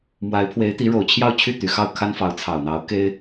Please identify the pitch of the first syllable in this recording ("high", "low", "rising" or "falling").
rising